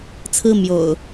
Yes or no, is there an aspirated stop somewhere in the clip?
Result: yes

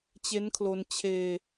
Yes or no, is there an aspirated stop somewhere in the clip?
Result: yes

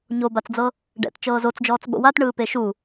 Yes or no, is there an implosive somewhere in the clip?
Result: yes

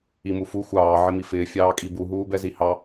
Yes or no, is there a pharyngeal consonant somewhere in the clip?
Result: yes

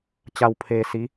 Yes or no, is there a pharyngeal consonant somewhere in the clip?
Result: no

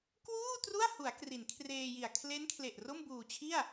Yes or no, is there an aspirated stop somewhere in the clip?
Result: yes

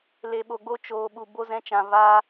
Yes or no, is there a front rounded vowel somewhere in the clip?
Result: no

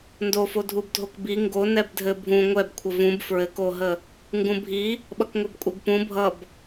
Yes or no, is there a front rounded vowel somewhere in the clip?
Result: no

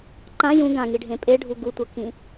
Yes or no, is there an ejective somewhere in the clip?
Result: yes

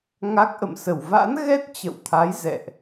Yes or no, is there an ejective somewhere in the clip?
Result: no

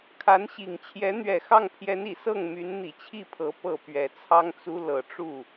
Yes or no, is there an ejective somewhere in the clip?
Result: no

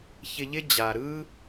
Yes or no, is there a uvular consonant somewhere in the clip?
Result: no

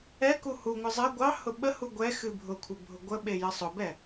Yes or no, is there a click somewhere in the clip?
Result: no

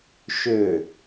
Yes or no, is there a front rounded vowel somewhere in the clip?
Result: yes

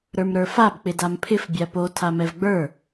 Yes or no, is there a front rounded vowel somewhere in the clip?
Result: no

